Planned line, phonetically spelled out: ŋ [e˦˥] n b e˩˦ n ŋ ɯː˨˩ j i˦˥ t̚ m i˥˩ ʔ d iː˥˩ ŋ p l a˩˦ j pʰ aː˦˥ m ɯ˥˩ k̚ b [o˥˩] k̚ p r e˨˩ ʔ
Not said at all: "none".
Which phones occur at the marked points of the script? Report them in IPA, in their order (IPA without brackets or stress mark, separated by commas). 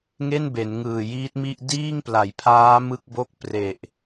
e˥˩, o˥˩